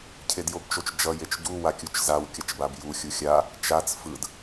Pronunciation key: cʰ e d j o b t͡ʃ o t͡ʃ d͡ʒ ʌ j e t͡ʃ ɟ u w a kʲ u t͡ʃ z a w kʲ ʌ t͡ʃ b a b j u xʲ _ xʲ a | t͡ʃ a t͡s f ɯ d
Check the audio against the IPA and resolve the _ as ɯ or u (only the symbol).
u